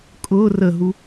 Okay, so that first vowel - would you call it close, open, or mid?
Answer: close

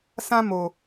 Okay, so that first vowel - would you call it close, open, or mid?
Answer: open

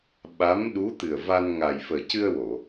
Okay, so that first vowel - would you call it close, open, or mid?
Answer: open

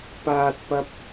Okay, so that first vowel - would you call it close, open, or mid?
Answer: open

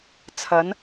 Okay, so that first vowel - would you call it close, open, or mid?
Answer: open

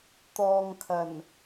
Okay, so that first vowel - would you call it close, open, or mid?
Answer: mid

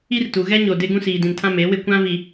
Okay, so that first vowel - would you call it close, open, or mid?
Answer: close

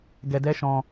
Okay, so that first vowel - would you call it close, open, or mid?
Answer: mid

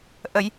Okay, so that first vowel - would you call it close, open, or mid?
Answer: mid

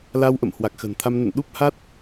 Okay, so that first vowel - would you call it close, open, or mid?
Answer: open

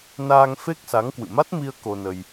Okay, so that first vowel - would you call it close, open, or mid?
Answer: open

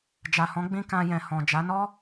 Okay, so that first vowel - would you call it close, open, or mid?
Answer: open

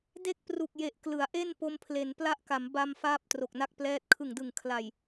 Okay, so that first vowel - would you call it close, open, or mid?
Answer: mid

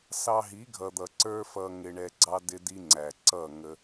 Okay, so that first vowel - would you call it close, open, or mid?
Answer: open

